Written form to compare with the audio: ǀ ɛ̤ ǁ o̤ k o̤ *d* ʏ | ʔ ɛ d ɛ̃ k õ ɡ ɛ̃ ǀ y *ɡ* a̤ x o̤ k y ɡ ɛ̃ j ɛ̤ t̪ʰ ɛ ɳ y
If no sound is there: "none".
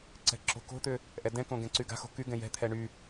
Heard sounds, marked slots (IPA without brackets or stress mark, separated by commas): t̪, ɡ